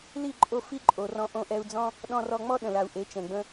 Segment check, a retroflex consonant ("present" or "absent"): absent